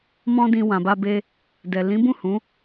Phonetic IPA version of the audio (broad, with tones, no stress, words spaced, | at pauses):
mɔ̃˦dĩ˧wã˨ ba˧be˧ | dɛ˨ lĩ˨˦bũ˦˨ hũ˨˦